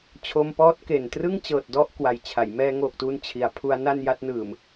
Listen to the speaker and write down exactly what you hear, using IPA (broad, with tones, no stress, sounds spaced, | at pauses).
t͡ɕʰ o˧ m p ɔː˦˥ t̚ k e˨˩ n t r ɯ˥˩ ŋ t͡ɕ ɤː˨˩ t̚ d ɔ˥˩ ʔ k w a˨˩ j t͡ɕʰ a˩˦ j m ɛː˧ ŋ oː˨˩ k̚ t uː˧ n t͡ɕʰ i˩˦ a̯ pʰ u˦˥ a̯ n a˥˩ n j a˦˥ t̚ n ɯː˨˩ m